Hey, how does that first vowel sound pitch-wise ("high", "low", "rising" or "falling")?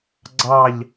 falling